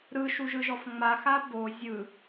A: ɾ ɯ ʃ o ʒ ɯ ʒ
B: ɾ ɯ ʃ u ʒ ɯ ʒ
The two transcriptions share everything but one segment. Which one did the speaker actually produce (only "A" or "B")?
B